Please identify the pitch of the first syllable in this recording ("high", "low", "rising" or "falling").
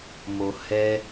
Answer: low